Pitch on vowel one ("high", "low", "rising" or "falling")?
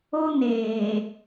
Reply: high